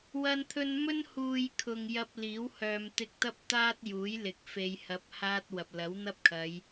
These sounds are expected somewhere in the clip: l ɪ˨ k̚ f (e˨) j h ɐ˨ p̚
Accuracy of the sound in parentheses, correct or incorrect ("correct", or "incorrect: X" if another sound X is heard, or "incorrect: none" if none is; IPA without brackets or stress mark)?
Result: correct